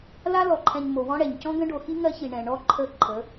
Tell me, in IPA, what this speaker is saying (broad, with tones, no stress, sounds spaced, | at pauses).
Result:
l a˦ l ɔ˨ ǃʰ ɛ̃˨ ɲ m o˨ w ɔ̃˦ ɽ ɛ˨ ɲ c ɔ̃˦ ɡ ə̃˦ ɖ o˨ x i˦ ŋ ɜ˦ ç i˨ ɳ ɛ̃˨ ɳ ɔ˦ ǃʰ ə˦˨ ǃʰ ə˨˦